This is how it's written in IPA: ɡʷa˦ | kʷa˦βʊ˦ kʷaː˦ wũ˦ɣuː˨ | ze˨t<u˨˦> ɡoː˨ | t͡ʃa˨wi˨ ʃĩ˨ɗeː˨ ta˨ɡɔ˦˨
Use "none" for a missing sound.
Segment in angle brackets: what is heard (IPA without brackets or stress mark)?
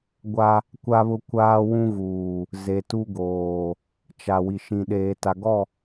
u˦